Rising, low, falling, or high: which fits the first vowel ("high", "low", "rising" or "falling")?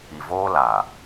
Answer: low